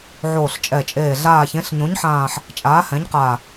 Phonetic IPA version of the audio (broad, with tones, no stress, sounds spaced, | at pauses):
ʕ oː˨˩ ɬ t͡ʃʼ ɛ˨˩ t͡ʃʼ eː˨˩ ɮ aː˨˩ ç ẽ˩˧ ɬ ɲ õ˩˧ ɲ ħ ãː˨˩ ħ | t͡ʃʼ aː˩˧ h ɛ̃˩˧ ɲ q a˨˩